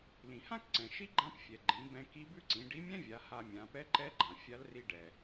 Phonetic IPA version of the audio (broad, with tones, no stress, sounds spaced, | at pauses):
l ĩ˩ h ã˥ k ǀ ɛ̃˩ ʃ i˥ ɡ͡ǃ ã˧˥ p fʲ ɛ˩ ɡ͡ǃ ĩ˩˧ b ɛ̃˧ k i˧˥ b ʉ˥ ǀ ĩ˩˧ ɖ i˧˥ mʲ ɛ̃˥ vʲ a˩˧ h a˧ mʲ ã˩˧ p ɛ˧˥ ǃ ɛ˧˥ ɡ͡ǃ ã˩ fʲ a˧˥ l r i˧ ɖ ɛ˩